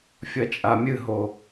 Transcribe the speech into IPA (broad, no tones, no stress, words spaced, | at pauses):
fʲɐt͡ʃʼamʲɨɦo